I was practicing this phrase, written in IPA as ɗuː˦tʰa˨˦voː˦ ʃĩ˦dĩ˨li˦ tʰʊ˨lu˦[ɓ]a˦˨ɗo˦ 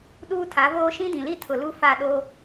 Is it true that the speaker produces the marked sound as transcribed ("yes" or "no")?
no